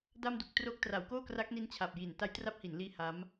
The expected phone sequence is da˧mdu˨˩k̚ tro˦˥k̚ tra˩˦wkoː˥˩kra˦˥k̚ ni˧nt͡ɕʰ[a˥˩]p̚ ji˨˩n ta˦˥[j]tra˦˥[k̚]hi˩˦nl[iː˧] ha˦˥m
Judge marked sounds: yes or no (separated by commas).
no, yes, no, yes